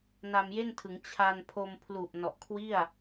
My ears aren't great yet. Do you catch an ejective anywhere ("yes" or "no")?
no